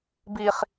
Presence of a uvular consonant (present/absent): present